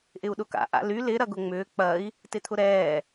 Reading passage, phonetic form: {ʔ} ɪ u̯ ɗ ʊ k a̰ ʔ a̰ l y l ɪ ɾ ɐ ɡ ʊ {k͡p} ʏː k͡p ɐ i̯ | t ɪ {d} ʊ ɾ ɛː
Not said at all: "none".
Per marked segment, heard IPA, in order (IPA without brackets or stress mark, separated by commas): ʔ, ŋ͡m, t̪ʰ